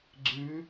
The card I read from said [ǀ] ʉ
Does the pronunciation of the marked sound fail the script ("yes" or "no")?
yes